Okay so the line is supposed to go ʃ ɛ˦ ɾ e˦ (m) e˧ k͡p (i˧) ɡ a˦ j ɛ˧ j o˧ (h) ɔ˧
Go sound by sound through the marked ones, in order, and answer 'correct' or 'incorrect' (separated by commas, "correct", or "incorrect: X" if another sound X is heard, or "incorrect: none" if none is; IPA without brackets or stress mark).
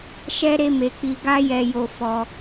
correct, correct, incorrect: f